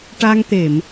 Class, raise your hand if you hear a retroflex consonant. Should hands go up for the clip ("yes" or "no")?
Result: yes